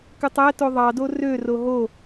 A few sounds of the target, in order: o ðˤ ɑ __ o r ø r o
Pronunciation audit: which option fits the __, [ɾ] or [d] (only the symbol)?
d